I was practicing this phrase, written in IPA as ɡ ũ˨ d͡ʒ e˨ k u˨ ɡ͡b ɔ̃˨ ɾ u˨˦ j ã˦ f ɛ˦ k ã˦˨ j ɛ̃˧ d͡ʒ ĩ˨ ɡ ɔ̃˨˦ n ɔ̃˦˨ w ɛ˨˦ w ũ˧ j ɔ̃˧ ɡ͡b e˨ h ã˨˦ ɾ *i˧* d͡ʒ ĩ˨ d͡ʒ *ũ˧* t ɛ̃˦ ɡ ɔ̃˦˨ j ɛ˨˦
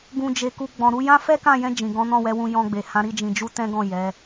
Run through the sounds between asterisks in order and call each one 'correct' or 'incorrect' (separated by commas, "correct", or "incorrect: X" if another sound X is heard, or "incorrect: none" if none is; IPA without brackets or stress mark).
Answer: correct, incorrect: u˧